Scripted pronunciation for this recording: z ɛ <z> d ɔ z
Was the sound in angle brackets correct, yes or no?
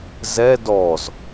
no